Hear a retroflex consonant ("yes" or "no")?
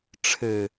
yes